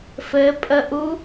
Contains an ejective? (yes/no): yes